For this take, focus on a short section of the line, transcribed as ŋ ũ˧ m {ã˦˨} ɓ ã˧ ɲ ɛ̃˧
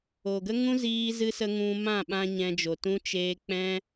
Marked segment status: correct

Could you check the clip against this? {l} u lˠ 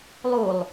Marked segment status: incorrect: lˠ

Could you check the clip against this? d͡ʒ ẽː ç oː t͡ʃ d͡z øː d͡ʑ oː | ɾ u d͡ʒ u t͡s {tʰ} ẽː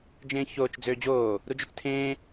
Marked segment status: correct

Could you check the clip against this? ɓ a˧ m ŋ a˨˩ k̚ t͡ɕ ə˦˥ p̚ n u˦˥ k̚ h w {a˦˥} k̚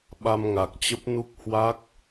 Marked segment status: correct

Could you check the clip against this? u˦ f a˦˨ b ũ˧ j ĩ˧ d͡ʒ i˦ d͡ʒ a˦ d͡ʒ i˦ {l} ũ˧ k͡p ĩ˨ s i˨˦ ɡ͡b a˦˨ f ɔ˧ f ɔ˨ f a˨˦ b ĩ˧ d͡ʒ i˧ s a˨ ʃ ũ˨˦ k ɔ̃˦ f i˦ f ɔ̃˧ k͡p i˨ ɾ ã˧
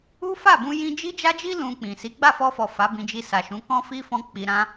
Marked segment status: correct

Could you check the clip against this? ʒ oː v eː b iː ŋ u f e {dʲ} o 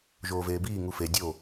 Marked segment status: correct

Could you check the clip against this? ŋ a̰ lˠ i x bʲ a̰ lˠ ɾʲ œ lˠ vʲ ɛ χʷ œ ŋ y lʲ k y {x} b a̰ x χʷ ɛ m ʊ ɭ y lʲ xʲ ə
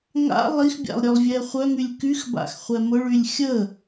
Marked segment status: correct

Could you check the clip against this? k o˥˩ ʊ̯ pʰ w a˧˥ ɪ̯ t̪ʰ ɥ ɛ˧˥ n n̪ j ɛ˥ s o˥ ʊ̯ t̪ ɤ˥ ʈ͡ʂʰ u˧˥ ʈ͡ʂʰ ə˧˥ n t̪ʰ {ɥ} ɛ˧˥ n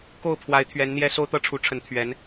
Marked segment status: correct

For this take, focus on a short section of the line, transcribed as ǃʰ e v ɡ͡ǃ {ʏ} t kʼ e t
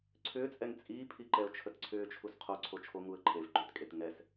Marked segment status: correct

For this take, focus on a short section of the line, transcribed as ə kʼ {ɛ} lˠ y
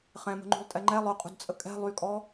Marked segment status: incorrect: ɛ̤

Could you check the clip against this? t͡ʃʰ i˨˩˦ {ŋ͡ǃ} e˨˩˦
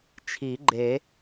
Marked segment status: incorrect: ɡ͡ǃ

